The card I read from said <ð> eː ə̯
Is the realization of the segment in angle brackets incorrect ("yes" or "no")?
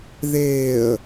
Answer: no